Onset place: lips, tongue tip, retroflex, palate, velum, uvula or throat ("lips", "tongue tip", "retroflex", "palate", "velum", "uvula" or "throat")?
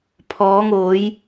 lips